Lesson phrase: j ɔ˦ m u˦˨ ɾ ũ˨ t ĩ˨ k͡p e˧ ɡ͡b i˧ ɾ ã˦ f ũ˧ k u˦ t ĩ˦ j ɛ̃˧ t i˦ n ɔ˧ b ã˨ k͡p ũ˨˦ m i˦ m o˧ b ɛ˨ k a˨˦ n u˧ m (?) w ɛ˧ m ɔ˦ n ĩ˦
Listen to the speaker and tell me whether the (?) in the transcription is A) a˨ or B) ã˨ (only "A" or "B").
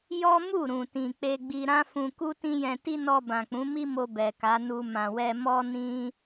B